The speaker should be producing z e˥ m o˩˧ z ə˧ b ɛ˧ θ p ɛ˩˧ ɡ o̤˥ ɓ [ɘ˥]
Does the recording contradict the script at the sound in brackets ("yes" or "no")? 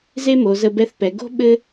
no